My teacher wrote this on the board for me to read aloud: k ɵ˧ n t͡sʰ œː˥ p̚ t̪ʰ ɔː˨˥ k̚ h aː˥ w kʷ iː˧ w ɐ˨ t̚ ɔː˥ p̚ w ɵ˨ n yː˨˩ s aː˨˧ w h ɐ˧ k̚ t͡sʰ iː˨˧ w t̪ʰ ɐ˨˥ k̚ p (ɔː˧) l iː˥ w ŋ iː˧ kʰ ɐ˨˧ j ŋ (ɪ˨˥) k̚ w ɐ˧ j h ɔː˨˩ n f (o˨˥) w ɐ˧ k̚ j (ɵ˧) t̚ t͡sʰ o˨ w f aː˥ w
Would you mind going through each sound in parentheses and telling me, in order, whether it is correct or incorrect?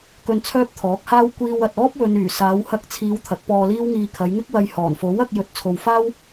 correct, incorrect: ɪ˥, correct, correct

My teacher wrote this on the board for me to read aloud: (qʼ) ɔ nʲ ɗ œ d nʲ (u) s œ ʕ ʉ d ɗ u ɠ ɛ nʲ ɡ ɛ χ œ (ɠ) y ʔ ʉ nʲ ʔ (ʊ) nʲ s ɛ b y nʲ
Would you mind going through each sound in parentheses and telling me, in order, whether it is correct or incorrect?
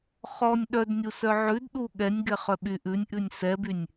incorrect: χ, correct, incorrect: ɓ, incorrect: ʉ

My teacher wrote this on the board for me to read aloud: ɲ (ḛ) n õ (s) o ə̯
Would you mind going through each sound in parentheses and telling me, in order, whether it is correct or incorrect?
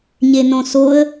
incorrect: e, correct

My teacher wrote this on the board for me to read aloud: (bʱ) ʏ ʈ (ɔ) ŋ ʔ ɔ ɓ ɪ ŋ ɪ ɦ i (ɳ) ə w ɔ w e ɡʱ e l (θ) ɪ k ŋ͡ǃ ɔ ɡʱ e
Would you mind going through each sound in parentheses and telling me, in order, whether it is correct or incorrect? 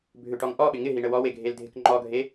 correct, correct, correct, incorrect: dʱ

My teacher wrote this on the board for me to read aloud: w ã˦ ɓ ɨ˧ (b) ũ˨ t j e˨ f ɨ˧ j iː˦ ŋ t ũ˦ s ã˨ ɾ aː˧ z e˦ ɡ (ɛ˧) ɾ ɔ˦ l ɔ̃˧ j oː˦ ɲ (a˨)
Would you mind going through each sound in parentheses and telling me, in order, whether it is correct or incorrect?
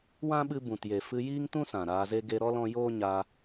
correct, incorrect: e˧, incorrect: a˧

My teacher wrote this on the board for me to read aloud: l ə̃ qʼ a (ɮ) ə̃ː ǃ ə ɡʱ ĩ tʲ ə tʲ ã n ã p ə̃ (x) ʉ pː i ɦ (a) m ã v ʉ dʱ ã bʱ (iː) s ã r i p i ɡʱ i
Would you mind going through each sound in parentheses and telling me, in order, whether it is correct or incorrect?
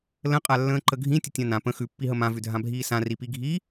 incorrect: lː, correct, incorrect: ə, correct

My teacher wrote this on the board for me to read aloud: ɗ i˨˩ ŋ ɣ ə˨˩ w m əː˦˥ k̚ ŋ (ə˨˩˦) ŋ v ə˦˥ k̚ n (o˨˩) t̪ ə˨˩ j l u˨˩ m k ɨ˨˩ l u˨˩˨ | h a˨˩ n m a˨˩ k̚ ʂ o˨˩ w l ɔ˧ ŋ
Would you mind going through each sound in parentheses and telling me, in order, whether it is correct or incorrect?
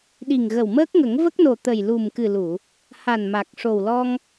correct, correct

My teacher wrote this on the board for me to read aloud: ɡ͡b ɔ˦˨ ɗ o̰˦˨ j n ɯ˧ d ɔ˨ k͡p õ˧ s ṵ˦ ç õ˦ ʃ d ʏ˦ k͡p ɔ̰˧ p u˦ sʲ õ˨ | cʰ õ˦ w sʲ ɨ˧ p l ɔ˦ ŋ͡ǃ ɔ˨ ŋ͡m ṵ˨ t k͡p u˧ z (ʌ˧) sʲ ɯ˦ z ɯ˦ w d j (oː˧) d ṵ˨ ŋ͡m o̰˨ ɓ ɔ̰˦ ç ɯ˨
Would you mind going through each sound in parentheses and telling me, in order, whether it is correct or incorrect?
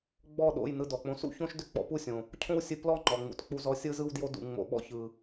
incorrect: ɔ˧, incorrect: o˧

